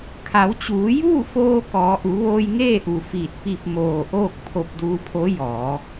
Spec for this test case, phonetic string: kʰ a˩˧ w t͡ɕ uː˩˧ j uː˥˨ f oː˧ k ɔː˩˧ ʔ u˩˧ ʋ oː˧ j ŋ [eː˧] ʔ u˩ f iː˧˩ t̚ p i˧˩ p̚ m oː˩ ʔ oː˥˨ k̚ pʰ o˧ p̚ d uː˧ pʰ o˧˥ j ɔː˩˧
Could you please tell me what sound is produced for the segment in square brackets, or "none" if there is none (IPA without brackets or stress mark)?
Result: eː˥˨